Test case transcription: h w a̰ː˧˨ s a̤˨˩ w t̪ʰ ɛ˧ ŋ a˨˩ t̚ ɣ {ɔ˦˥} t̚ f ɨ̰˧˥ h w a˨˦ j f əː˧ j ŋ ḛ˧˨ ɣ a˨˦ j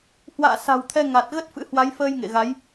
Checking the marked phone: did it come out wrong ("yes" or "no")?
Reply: yes